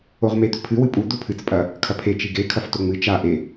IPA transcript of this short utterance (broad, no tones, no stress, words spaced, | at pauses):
oʁmed̪ɵpʰɨ wɨpʼu d̪opʰɨt͡s pʼɐ | kʰɐpʰe t͡ʃiɡe kʰɐftoŋ͡mɨ t͡ʃa ʔe